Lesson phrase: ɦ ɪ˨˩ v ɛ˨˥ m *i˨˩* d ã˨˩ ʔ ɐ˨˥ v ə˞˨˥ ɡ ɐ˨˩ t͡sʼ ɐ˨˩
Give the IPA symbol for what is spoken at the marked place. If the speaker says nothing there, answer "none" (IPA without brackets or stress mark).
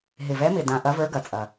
ɪ˨˩